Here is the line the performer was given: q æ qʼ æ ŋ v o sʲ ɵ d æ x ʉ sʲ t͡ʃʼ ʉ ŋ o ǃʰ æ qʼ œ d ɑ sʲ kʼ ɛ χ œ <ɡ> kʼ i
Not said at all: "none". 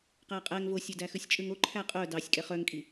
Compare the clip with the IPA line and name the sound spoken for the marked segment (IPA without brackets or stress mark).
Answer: ŋ